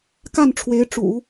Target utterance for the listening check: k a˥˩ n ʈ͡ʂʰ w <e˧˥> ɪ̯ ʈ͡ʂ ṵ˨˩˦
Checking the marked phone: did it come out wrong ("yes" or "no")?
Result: no